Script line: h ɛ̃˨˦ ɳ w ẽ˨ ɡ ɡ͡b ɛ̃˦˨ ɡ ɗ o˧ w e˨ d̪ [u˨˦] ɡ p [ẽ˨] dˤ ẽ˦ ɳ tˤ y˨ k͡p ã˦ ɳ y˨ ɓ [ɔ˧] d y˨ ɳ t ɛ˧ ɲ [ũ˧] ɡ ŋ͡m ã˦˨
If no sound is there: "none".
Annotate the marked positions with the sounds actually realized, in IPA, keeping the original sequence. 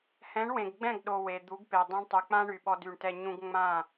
u˨˦, e˨, ɔ˧, ũ˦

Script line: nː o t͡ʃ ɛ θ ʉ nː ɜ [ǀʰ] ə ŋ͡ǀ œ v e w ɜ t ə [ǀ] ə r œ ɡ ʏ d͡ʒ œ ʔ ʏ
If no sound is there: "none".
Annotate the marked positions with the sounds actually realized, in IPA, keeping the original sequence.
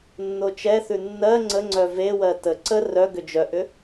ŋ͡ǀ, ǀ

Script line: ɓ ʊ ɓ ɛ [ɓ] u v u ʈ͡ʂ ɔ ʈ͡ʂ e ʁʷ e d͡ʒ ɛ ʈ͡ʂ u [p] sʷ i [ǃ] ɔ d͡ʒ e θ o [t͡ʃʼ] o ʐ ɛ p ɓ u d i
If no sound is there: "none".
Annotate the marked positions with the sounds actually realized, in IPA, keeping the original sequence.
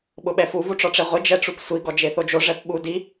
f, p, ɡ, d͡ʒ

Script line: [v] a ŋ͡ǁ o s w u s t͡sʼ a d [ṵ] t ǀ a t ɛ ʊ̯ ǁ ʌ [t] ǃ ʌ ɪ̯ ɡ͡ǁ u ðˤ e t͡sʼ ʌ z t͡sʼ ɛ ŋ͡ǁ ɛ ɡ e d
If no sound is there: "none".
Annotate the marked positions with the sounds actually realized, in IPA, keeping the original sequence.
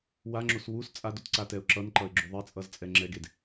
w, u, n

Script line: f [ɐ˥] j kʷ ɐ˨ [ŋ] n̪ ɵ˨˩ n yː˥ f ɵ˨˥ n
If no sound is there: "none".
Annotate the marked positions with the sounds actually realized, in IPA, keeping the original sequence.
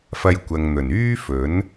ɐ˧, ŋ

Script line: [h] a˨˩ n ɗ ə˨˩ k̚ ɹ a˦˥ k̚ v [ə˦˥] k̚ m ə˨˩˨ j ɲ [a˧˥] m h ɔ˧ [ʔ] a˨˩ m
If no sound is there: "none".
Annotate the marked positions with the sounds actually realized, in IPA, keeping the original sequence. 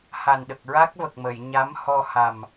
h, ə˨˩, a˧˥, h

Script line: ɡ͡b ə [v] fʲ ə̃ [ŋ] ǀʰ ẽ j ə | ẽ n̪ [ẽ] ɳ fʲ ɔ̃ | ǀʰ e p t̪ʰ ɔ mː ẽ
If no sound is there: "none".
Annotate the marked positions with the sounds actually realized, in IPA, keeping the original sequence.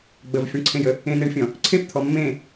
v, ɳ, e

